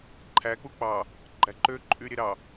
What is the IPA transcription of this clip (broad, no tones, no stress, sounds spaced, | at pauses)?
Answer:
ǃʰ æ k͡p u k͡p ɑ | ɡ͡ǃ æ ǃ ø ǃʼ y ɾʲ e ɾ ɑ